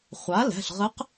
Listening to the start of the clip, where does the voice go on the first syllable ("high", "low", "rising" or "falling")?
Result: rising